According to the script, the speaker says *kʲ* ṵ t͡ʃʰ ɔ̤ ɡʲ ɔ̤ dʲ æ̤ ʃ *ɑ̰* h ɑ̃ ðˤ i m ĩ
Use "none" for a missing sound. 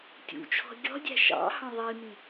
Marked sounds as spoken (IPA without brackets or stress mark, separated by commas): tʲ, ɑ̰